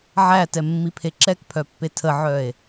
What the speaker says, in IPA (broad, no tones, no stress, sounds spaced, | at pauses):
ʕ æ t ɛ mː i pʰ e ǁ ɛ k pʰ œ pː e tʰ ə ʕ œ e̯